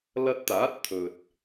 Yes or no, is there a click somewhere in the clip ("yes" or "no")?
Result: no